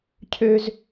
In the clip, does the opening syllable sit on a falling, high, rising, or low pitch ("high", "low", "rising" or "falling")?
high